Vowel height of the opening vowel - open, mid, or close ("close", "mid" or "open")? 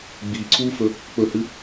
close